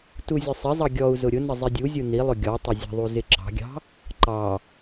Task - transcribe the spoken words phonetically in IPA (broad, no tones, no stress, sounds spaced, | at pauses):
t u zʲ ʊ sˤ ɪ zˤ ʌ ɡʲ ɔ u̯ z ʊ ɾʲ ʊ n ə zˤ i dʲ u zʲ u n i lˠ ʊ ɡʲ ɔ tˤ ɪ zʲ ə̤ ðˤ u z ɪ ǁ ɑ̤ ɡʲ ɑ̤ | ǃ ɑ